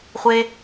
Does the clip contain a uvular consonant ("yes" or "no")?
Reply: yes